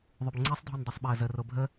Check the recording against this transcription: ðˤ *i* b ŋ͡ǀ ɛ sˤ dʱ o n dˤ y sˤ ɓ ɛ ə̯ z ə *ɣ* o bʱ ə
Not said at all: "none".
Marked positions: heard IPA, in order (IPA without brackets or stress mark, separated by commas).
y, r